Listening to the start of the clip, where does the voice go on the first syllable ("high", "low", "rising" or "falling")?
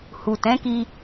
low